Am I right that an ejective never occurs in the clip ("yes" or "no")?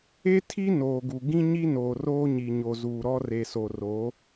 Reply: yes